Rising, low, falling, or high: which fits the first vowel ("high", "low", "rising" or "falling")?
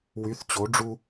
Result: rising